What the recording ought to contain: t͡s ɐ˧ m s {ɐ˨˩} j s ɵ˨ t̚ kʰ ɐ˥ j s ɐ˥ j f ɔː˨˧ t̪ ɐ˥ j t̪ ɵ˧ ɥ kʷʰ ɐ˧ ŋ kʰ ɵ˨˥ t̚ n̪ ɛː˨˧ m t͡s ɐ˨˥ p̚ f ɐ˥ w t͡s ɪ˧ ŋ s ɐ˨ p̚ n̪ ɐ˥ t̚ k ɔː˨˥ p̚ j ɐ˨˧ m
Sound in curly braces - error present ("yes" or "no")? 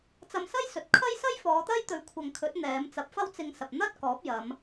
yes